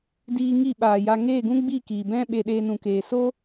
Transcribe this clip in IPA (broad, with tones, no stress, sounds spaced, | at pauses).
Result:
d iː˧ ŋ i˦˨ ɓ aː˨ j a˧ ŋ eː˦˨ ɡ ũ˦ ɡ͡b i˦˨ k iː˨ b ɛ̃˦ ɓ e˧ ɗ eː˧ n ũ˨ k eː˨ s o˦